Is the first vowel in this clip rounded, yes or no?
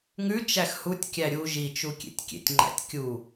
yes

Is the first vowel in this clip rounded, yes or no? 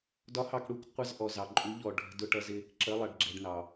yes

